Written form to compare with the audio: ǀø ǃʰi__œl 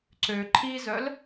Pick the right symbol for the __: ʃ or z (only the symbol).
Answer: z